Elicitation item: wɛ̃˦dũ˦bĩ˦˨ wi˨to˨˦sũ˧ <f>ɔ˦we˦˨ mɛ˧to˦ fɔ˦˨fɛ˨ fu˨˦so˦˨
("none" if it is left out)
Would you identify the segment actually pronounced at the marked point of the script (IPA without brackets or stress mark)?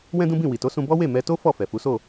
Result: b